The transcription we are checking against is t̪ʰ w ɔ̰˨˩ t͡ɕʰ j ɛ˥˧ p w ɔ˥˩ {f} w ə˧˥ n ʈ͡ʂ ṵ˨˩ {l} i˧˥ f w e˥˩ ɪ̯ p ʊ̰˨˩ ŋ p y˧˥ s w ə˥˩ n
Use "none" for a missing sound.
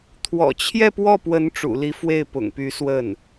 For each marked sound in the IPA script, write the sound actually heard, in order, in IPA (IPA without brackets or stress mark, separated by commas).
p, l